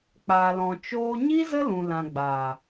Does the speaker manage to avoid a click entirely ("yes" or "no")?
yes